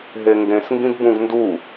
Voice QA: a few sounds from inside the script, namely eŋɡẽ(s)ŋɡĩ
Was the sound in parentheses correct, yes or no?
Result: yes